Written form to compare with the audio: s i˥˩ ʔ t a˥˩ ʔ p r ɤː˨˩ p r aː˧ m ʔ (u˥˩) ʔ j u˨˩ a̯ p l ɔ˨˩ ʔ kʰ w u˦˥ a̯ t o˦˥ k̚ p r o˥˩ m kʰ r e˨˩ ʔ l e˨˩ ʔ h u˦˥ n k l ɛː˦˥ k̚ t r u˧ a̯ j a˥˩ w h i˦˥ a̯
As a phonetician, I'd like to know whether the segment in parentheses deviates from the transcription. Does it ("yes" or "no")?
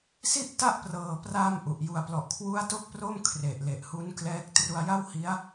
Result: yes